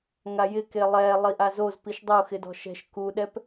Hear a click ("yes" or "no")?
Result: no